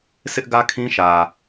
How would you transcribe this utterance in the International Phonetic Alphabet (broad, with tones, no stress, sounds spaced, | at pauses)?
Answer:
sʰ ɪ˦ ʔ ɡ ä˦ kʰ ĩ˦ ʃ ä˨